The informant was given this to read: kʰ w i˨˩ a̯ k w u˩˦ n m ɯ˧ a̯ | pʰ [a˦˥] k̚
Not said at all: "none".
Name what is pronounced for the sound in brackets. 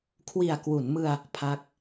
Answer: a˦˥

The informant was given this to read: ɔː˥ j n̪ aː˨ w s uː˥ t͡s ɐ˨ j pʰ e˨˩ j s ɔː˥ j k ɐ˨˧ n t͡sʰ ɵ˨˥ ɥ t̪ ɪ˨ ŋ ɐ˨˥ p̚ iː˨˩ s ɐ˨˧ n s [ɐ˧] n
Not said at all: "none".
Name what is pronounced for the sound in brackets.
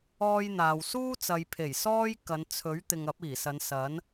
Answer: ɐ˨˥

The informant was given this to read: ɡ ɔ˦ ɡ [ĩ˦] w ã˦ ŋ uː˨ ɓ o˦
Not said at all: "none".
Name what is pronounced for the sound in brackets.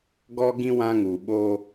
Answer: ĩ˦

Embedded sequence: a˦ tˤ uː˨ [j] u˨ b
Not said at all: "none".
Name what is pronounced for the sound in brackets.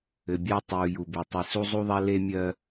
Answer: j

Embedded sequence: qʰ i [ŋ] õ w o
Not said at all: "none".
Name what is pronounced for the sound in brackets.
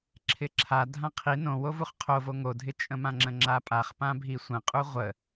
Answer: n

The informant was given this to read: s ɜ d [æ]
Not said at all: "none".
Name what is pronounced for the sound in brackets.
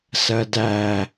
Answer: æ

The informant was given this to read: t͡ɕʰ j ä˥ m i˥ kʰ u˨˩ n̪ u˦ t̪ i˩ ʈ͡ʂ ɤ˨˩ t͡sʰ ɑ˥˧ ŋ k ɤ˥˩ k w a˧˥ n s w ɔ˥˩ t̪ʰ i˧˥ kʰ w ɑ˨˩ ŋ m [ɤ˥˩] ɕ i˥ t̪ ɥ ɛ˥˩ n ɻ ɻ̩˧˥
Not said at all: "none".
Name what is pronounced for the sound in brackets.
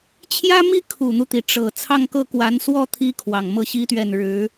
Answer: ɤ˥˩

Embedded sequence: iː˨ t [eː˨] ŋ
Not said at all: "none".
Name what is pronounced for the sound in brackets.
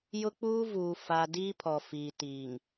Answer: iː˨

